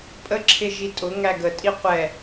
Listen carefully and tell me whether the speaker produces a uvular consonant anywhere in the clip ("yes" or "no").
yes